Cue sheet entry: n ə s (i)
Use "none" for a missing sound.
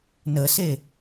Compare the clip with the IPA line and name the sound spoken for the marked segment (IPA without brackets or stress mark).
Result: e